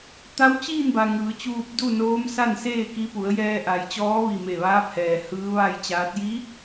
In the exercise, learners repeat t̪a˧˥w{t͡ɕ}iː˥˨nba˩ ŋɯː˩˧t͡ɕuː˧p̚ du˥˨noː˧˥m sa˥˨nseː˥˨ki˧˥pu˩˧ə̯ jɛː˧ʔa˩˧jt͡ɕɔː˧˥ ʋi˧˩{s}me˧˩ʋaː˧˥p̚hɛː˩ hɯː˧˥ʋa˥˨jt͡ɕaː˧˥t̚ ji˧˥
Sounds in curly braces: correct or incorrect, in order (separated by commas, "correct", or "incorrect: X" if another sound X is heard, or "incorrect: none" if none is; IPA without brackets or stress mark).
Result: correct, incorrect: none